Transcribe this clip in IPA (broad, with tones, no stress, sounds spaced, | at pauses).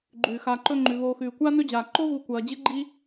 ɡ͡ǃ ʉː˩ x aː˨ ǃ ɵ˦ ŋ͡ǃ ʉ˩ β oː˨ x ʉː˩ kʷ aː˥ n ɵ˥ d͡ʑ aː˩ ǃ o˥ v u˨ kʷ ɐː˩ d͡ʑ ɨ˥ ɡ͡ǃ i˥